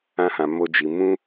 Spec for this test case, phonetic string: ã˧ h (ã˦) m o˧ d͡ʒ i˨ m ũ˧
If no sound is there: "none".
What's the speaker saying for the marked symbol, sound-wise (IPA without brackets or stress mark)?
ã˨